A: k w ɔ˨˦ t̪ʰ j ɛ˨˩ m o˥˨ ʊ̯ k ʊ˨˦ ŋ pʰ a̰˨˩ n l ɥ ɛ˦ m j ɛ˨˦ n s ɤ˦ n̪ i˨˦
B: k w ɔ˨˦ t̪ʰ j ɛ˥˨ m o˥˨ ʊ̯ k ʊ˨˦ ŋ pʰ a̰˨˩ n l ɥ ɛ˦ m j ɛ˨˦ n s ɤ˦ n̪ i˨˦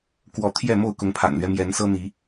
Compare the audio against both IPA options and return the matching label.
B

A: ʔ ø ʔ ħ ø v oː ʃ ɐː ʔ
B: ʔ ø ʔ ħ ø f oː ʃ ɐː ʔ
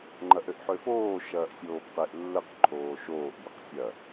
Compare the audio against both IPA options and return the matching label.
B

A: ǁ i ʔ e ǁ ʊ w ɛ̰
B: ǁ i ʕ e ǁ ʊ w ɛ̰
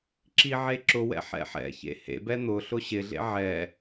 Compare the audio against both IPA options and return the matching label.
B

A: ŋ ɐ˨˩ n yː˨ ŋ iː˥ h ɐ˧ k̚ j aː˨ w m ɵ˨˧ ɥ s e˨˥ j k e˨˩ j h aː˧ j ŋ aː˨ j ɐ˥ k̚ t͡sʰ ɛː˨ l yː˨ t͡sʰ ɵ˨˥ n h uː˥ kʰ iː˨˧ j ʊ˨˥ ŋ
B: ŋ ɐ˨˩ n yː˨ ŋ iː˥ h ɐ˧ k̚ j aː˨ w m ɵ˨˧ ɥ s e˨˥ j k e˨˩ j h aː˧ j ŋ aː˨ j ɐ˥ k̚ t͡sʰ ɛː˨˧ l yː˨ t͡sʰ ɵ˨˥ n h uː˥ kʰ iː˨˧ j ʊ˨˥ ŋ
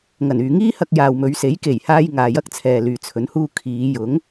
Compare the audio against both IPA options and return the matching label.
A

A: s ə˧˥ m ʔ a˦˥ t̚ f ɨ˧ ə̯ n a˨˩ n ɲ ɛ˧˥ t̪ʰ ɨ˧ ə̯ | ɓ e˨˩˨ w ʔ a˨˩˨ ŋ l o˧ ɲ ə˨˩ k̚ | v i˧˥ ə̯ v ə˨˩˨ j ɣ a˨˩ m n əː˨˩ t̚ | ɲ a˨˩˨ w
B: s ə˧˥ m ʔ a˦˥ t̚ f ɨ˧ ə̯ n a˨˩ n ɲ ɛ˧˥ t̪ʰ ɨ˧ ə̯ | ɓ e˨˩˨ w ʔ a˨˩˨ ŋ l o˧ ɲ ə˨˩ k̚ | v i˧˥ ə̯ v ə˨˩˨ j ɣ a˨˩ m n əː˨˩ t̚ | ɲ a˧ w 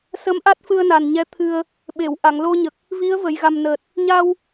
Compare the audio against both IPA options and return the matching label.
B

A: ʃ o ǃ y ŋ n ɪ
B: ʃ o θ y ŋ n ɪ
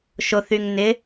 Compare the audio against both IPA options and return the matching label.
B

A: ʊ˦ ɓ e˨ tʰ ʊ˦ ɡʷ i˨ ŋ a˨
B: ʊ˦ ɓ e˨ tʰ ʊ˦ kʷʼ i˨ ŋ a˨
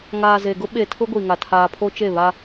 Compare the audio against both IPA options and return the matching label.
A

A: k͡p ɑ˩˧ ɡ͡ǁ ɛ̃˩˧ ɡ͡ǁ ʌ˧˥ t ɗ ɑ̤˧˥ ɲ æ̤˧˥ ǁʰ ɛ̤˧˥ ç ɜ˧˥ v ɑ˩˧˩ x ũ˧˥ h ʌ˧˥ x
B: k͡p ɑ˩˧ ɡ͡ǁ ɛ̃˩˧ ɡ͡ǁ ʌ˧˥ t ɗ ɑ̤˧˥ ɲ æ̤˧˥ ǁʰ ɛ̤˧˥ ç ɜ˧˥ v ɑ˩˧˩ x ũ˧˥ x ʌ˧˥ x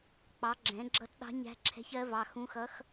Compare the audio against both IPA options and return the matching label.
B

